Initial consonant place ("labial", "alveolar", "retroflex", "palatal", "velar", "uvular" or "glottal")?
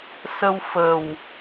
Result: alveolar